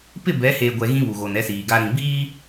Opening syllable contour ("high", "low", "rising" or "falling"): falling